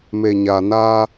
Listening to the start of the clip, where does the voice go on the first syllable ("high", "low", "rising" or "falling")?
low